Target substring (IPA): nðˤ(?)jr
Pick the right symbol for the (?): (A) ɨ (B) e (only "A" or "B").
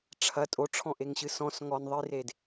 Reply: A